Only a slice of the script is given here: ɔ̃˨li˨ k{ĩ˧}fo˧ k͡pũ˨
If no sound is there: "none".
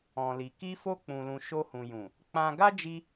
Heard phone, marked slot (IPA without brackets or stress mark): i˧